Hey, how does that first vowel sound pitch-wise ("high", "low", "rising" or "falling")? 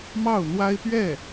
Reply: falling